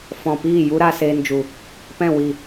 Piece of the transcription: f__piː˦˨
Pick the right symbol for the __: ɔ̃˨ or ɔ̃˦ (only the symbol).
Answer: ɔ̃˨